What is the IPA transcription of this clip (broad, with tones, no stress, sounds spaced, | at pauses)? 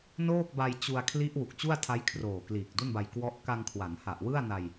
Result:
n oː˥˩ k̚ b a˧ j t͡ɕ u˧ a̯ kʰ l i˦˥ ʔ w u˨˩ k̚ t͡ɕ u˥˩ a̯ tʰ a˦˥ j kʰ r oː˨˩ k l iː˨˩ k̚ d u˥˩ n b a˧ j k w ɔ˦˥ ʔ k a˧ ŋ kʰ w a˩˦ n h a˨˩ ʔ w ɯ˥˩ a̯ n a˧ j